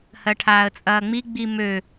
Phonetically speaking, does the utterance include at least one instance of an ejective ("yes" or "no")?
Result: yes